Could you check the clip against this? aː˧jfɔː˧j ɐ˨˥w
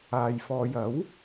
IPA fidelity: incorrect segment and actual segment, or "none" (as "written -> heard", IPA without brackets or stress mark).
none